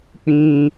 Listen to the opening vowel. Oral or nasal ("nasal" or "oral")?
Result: nasal